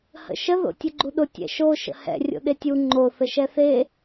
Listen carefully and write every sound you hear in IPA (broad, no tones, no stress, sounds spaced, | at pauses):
h ə̰ ʃ ə ð o̰ tʲ ʊ ɡ͡ǃ u ɗ ʊ tʲ ɛ̰ ʃ o ʃ ə̰ h ɛ̰ rʲ o̰ ɗ e tʲ u ŋ͡ǃ o θ ə ʃ ɛ θ e